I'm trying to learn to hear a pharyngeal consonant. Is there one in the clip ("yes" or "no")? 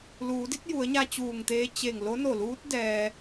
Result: no